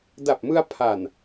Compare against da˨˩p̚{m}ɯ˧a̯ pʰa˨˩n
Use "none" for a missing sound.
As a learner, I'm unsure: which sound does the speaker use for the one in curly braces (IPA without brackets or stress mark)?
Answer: m